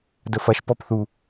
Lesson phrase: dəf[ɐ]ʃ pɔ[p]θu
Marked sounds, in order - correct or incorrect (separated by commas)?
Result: correct, correct